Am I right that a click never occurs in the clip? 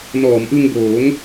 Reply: yes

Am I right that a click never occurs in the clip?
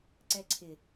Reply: no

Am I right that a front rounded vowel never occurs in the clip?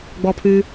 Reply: no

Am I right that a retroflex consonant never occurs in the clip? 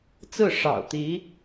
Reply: no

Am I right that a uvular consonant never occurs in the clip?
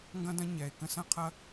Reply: no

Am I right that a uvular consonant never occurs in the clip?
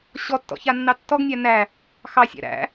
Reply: yes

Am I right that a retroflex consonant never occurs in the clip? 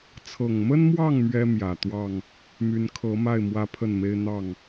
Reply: yes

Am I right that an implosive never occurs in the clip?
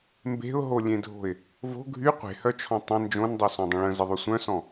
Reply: yes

